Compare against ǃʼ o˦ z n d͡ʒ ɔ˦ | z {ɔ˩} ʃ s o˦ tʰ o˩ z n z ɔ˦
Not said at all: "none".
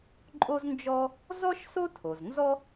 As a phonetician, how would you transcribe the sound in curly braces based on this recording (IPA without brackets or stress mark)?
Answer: ɔ˥